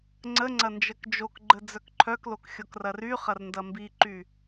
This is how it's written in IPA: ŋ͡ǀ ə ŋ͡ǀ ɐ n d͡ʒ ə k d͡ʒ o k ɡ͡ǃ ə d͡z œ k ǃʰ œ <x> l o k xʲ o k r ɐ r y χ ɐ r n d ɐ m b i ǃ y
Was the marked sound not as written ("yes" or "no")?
yes